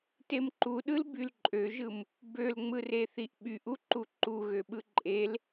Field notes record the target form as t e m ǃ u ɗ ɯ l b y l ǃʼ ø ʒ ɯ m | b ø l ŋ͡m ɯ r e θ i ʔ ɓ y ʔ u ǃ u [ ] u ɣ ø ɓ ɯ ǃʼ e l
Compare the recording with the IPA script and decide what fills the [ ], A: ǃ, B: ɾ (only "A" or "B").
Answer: A